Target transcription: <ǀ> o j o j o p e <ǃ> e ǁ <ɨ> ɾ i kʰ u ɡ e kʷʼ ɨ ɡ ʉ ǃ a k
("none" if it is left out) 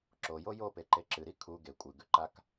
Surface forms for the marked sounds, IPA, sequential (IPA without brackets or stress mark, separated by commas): ǁ, ǃ, ɨ